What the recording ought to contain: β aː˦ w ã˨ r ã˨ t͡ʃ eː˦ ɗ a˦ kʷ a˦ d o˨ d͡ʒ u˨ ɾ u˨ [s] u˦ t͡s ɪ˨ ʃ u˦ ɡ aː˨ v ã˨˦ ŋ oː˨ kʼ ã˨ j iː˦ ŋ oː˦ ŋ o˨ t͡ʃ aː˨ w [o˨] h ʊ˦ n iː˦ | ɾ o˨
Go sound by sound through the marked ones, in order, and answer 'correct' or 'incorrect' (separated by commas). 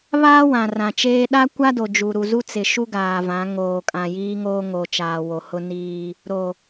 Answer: incorrect, correct